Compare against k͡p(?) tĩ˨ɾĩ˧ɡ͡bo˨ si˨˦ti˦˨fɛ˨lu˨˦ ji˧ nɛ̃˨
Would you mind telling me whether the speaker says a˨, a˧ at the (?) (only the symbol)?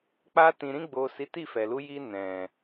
a˧